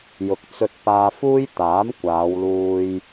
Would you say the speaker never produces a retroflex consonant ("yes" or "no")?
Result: yes